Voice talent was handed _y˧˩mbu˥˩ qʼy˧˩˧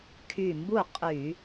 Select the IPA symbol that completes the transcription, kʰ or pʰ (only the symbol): kʰ